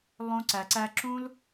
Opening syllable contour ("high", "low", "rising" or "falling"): high